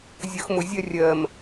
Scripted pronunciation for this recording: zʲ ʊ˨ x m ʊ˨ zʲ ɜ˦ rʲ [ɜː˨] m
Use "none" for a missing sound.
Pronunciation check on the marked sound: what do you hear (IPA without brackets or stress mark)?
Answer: ɜː˨